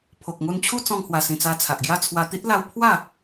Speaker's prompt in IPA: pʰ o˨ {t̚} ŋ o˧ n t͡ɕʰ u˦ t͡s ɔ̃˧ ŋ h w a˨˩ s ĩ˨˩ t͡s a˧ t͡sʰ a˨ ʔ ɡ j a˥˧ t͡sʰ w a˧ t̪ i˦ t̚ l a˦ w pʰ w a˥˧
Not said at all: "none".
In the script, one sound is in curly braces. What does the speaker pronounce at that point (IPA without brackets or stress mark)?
k̚